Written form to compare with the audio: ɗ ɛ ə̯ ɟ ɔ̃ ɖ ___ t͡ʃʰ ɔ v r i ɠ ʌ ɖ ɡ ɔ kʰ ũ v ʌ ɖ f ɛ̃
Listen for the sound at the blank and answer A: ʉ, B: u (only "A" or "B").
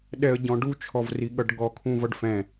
B